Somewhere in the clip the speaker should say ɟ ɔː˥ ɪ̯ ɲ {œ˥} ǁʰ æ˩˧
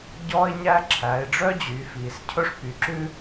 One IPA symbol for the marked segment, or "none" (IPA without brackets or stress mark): æ˥